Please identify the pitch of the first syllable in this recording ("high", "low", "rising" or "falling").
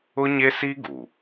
high